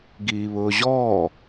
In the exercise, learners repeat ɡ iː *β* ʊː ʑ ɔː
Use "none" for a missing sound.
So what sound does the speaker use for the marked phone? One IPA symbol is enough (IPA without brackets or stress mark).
β